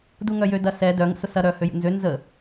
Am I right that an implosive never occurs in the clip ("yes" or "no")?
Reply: yes